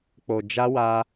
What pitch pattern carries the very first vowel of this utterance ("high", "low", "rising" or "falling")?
low